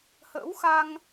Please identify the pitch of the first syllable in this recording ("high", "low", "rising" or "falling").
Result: rising